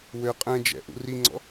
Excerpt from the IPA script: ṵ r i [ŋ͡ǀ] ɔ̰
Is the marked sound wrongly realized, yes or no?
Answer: no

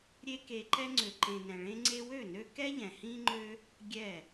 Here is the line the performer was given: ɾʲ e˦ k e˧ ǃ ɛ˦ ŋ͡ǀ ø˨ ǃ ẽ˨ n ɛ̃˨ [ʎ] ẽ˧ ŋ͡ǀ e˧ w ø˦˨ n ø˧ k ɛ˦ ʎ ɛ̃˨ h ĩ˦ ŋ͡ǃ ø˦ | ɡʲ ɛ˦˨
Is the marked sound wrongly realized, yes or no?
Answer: yes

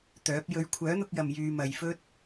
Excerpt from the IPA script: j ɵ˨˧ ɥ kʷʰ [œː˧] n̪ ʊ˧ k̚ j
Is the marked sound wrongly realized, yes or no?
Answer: yes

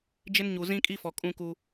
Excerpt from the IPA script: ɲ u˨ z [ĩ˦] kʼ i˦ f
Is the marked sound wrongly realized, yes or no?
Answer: no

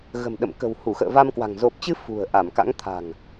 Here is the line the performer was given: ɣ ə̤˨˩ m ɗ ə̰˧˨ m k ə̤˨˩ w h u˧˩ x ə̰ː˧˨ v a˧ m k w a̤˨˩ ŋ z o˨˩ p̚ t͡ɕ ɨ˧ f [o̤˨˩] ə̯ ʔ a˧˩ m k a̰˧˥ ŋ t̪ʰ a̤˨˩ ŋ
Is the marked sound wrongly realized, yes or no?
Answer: yes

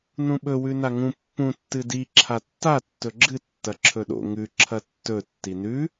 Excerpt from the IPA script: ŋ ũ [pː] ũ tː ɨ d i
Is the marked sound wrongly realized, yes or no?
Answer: no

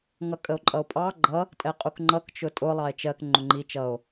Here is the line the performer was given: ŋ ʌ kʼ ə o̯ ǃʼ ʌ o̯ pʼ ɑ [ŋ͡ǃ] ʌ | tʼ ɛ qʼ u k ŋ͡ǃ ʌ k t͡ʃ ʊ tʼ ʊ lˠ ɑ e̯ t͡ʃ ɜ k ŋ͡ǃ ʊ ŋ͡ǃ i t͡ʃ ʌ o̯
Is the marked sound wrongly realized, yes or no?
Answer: yes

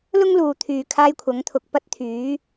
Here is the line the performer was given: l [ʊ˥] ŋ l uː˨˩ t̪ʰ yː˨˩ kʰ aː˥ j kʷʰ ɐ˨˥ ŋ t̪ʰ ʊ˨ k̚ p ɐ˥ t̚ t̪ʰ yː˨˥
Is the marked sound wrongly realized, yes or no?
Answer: no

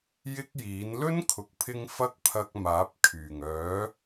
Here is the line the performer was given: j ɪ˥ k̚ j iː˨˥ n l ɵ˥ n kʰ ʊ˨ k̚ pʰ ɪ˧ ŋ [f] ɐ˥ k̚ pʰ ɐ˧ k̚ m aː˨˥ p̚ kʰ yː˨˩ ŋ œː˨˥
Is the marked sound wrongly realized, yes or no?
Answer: no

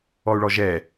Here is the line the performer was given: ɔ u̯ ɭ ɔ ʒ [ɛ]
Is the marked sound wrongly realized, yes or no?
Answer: no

